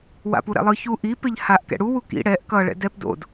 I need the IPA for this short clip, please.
w a̰ p u ɾ ɛ̰ lˠ ɯ ç u ʔ i p e ʎ h a ʔ k ɛ̰ ɽ u w u k ḭ ɽ ɛ ʔ k ʌ ɭ ɛ̰ d ɛ p d o̰ d

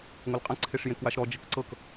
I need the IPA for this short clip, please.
ŋʷ ʌ l qʼ ã ǀʰ e ʂ j ẽ k w a ʃ ɾ ɔ d͡ʒ ə k ǀ ɤ k

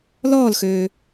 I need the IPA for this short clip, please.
l ɔː l x øː

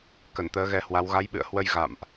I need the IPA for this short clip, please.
k ə˧˩ n t̪ əː˨˦ ɣ ɛ˧ h w a˨˦ w ɣ a˨˦ j ɓ ɨ̰˧˨ ə̯ h w ə˧ j ɣ a̰˧˨ m ʔ

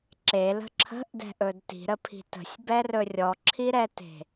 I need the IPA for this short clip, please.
ǁ e l ə̤ ǁʰ ə̤ ʔ d ɛ̤ ʔ ɵ d t i̤ ɾ ə pʰ i̤ t ə̤ sʲ b ɛ r ɵ rʲ ɔ ǁʰ i ɾ ɛ t e̤

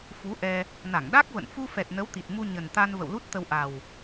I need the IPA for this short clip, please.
f u˨˦ ʔ ɛ˧ | n a˧˩ ŋ ɗ a˦˥ k̚ v ə̰˧˨ n f u˧ f ɛ˨˩ t̚ n ə˨˦ w t̪ i˨˩ t̚ m u˧ ɲ ə˨˩ n t̪ a˧ n v ə̰˧˨ w l u˦˥ t̚ t̪ ə˧ w ʔ a˨˩ w

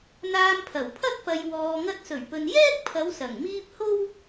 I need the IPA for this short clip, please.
n̪ aː˧ m pʰ ɐ˨˩ w pʰ ɐ˥ t̚ p ɐ˨ j w ɔː˨ ŋ ɐ˧ t̚ s ɵ˨˩ ɥ p ɵ˨ n j ɛː˥ k̚ pʰ ɐ˨˧ w s ɐ˨˩ ŋ m iː˧ p̚ h o˥ w

